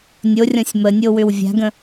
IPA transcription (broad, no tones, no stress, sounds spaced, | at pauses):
nʲ o rʲ ɔ̃ sʲ m ə nʲ o w ʏ w vʲ a̤ ɡ ə̃